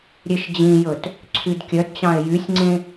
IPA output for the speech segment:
ɾʲ e ʃ d͡ʑ ĩ j ɵ t | ǀʰ y d kʲ œ d t͡ɕ ɑ̃ e̯ j y sʲ ŋ͡ǀ ẽ

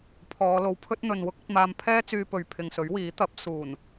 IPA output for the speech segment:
pʰ ɔː˨˧ l o˨˧ w pʰ ɵ˥ t̚ n̪ ɵ˨ n w ʊ˥ k̚ ɐ˧ t̚ m aː˧ m pʰ ɛː˥ t͡s yː˧ p ɵ˨ ɥ pʰ ɪ˨ ŋ s ɵ˨˥ ɥ w iː˨˥ t̪ ɐ˨˥ p̚ s uː˨˩ n

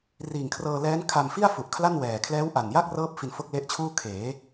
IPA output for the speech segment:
r iː˨˩ ŋ kʰ r ɤː˧ l ɛː˦˥ n kʰ a˧ m f i˥˩ a̯ f u˨˩ ʔ kʰ l a˥˩ n w ɛː˨˩ kʰ l ɛː˦˥ w ʔ a˨˩ n j a˥˩ k̚ r ɤː˦˥ p̚ f i˧ n f o˥˩ k̚ l e˦˥ ʔ t͡ɕʰ uː˥˩ kʰ eː˩˦

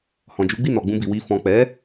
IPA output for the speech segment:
h ɔ̃˨ d͡ʒ u˨˦ ɡ͡b i˦˨ n ɔ˨ ɡ͡b ũ˧ b i˨ w i˧ f ɔ̃˨ k͡p ɛ˨˦

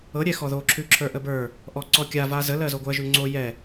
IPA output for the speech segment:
ɤ ɾʲ ɛ x ɔ ð o ǁʰ ʉ ǁʰ ə˞ ʔ ə b ə˞ | ʔ ɔ ǀ ɔ kʲ a v a z ə l ɜ z o ɡʷ ɜ ʒ ʉ ŋ͡ǀ o j ɛ

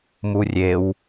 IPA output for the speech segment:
m u rʲ e w

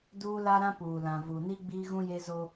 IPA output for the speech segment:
d uː˦ l a˦ ɾ ã˦ p uː˨ l ã˨ v u˨ n i˦ ɡ͡b iː˦ ɣ ũ˦ j e˦ z o˦

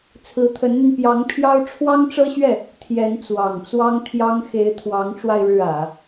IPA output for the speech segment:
t͡sʰ ɹ̩˧˥ t̪ʰ ə˧˥ n n̪ y˧ n p j ɑ˧˥ ŋ pʰ j ɑ˥ ʊ̯ ʈ͡ʂʰ w ɑ˥ ŋ ʈ͡ʂ ɤ˥ ɕ ɥ ɛ˥˩ | t̪ʰ j ɛ˧˥ n t͡s w ɑ˨˩ ŋ t͡s w ɑ˥ ŋ t̪ʰ j ɑ˥ ŋ x e˧˥ ɪ̯ t̪ʰ w ɑ˧˥ ŋ ʈ͡ʂ w a˧ ɪ̯ ɻ ɻ̩˥˩ ä˨˩˦

